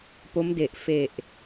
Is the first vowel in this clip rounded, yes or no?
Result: yes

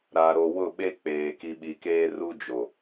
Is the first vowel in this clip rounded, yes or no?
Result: no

